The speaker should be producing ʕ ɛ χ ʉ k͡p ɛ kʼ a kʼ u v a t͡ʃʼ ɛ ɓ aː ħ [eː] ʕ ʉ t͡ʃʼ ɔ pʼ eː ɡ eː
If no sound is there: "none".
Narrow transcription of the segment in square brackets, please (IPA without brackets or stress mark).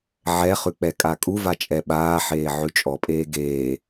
eː